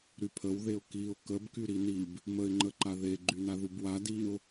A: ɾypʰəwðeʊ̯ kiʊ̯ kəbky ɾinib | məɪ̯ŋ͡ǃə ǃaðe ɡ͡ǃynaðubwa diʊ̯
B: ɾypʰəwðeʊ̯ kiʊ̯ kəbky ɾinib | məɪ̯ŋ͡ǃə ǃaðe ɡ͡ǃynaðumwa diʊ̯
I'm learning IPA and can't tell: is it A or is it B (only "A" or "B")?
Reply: A